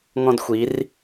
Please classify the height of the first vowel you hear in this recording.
mid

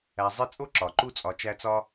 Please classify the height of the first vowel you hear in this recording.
low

